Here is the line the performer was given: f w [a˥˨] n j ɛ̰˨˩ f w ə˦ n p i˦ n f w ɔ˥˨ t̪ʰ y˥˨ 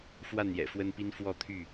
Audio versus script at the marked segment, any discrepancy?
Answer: no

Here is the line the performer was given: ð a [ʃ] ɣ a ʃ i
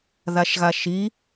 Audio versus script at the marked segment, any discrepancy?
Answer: no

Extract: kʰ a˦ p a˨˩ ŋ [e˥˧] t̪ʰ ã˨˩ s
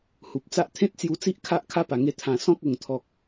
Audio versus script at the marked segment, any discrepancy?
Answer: yes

